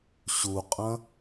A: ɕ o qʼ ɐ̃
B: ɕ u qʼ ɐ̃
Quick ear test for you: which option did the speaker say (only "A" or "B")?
B